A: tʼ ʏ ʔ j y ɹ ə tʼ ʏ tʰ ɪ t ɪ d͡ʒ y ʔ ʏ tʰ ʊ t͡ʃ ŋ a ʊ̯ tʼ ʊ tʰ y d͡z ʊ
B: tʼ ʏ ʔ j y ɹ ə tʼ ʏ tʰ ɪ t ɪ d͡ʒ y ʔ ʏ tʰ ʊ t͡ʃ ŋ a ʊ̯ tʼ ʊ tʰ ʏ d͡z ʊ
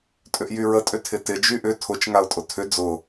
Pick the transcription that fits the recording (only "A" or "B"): B